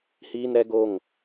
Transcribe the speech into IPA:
h iː˦ n ɾ ɛ˦ ɡ o˦˨ ŋ

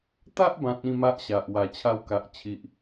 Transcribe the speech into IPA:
t̪ a˦ ʔ b ã˨ t̚ ĩ˥˧ m a˦ ʔ ɕ a˨ ʔ w a˨˩ t͡ɕʰ a˧ w k a˨ ʔ t͡ɕʰ i˨ ʔ

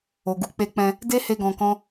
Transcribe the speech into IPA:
o˨ ɡ u˨ k͡p e˧ k͡p ɛ̃˧ | d e˦ h e˦ ɡ ɔ̃˧ k ɔ̃˦

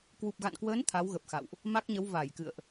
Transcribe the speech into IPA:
k w u˨˩ p̚ ɣ a̰˧˨ n k w əː˨˦ n t̪ʰ a˨˦ w ɣ ə˨˩ p̚ x a̰˧˨ w ʔ | m a˦˥ k̚ ɲ ə˨˦ w v a˧˩ j k ɨ̰˧˨ ə̯ ʔ

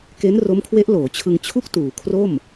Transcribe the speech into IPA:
k e˦˥ n r o˦˥ m kʰ w e˦˥ ʔ l oː˩˦ t͡ɕʰ ɯ˧ ŋ t͡ɕʰ u˥˩ k̚ t uː˩˦ kʰ r o˥˩ m

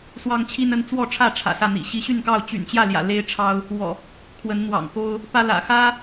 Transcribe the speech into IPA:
s w ɑ˦ ŋ t͡ɕʰ i˦ n ə˦ n t͡s w ɔ˥˨ ʈ͡ʂʰ ä˥˨ ʈ͡ʂʰ ä̰˨˩ s ä˥˨ n̪ ḭ˨˩ ɕ i˨˦ ɕ y˥˨ n k ɑ˥˨ ʊ̯ t͡ɕ y̰˨˩ n t͡ɕ j ä˥˨ l j ä̰˨˩ l e˦ ɪ̯ ʈ͡ʂʰ ɑ˦ ʊ̯ | w ɔ̰˨˩ | kʰ w ə˨˦ n n̪ w ɑ̰˨˩ ŋ k o˦ ʊ̯ | p ä˦ l ä̰˨˩ x ä˦

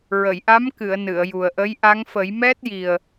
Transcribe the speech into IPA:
ɹ ə˨˩˨ j ʔ a˧˥ m k ɨ˨˩˨ ə̯ n ɨ˨˩˨ ə̯ j u˨˩ ə̯ ʔ ə˧˥ j ʔ a˧˥ ŋ f ə˨˩˦ j m ɛ˦˥ t̚ j i˨˩ ə̯

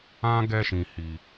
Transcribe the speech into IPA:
ã˦ ɡ ɛ˦ ʃ ĩ˨ h i˨

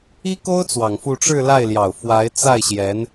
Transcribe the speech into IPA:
i˥ k o˥ ʊ̯ t͡s w ɑ˨˩ ŋ f u˥˧ ʈ͡ʂ ɻ̩˥˧ l a˥˩ ɪ̯ l j ɑ˨˩ ʊ̯ f w a˧˥ ɪ̯ t͡s a˥˩ ɪ̯ ɕ j ɛ˧˥ n

